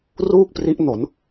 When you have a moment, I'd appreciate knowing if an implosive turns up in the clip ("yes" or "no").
no